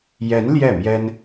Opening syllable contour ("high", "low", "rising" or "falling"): rising